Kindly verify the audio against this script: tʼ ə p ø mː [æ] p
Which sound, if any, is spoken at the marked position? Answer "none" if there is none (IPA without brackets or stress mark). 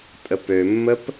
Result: ə